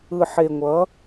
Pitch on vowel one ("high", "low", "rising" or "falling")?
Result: low